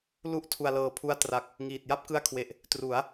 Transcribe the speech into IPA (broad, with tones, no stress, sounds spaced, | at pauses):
l u˥˩ ʔ tʰ u˨˩ a̯ l ɤː˨˩ pʰ u˧ a̯ t r a˨˩ k̚ | ŋ iː˨˩ t̚ j a˥˩ p̚ k ɯ˦˥ a̯ kʰ w e˨˩ ʔ | t r u˩˦ a̯